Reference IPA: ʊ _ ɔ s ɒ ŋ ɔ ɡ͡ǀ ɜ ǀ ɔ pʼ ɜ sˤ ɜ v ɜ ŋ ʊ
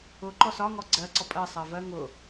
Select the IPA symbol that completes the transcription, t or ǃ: ǃ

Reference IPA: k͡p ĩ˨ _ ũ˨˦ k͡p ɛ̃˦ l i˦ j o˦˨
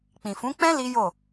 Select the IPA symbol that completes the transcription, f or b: f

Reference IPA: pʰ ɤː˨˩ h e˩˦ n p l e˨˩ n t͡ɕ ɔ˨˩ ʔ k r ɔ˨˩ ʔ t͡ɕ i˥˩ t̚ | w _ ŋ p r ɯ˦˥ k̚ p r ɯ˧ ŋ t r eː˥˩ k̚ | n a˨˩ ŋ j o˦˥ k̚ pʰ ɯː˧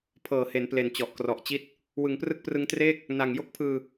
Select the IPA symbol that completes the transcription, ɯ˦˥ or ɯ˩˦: ɯ˩˦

